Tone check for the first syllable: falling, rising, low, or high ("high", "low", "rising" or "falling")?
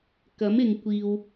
rising